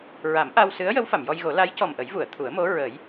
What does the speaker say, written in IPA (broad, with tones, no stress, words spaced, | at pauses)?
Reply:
ɹa˨˩˦mʔa˧wsɨ˧˥ə̯ jə˧˥wfa˨˩˨mjɔ˧jɣo˨˩˦ la˧˥jcɔ˨˩mʔə˨˩˦j vu˨˩˨ə̯t̪ʰu˨˩˦ə̯mo˧˥ ɹə˨˩˦j